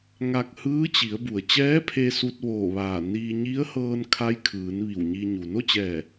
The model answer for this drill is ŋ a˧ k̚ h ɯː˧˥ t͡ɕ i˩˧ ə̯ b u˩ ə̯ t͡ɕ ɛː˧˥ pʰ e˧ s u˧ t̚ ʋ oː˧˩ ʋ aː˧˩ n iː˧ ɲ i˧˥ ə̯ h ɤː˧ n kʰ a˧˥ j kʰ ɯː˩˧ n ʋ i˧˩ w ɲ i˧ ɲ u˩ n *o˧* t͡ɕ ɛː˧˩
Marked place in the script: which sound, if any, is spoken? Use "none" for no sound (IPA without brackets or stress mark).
o˥˨